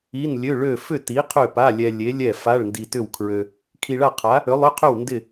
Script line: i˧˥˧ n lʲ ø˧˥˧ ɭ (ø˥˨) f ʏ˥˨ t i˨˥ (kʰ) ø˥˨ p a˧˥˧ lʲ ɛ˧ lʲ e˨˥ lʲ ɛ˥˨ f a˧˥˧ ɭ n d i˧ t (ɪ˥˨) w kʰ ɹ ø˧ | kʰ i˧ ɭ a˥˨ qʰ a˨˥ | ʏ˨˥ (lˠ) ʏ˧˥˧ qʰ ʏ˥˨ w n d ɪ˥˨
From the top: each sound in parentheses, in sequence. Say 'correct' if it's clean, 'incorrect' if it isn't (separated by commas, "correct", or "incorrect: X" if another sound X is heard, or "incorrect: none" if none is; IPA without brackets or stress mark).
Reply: correct, incorrect: qʰ, incorrect: ʏ˥˨, correct